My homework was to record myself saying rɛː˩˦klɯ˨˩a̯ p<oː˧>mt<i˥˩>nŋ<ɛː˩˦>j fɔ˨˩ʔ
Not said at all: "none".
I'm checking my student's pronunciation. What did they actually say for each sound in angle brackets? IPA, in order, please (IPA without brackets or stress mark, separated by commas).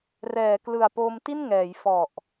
oː˧, i˥˩, ɛː˩˦